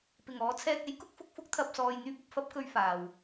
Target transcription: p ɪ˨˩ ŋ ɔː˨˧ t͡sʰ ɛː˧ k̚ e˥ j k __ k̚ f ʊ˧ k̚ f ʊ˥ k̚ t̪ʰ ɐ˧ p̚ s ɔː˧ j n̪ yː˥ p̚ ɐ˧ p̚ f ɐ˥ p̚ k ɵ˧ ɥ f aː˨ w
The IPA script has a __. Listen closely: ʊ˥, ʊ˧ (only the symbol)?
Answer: ʊ˥